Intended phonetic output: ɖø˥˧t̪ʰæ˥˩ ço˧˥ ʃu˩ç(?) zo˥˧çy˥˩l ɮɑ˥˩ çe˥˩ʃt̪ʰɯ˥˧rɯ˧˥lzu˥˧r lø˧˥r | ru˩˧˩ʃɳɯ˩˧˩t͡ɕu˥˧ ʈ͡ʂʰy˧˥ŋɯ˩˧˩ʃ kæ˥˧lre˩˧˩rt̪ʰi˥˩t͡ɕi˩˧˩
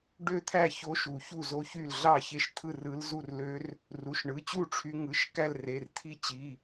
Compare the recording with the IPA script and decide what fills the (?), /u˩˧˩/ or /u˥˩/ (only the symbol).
u˥˩